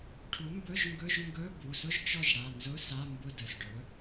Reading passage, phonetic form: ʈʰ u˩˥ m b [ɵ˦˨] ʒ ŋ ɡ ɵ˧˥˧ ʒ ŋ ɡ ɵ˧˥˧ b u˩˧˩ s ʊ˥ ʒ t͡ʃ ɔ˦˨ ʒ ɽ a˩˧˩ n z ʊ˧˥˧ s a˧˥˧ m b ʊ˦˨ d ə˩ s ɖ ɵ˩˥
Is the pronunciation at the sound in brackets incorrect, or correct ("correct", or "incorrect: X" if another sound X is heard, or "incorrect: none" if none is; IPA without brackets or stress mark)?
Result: incorrect: ɵ˧˥˧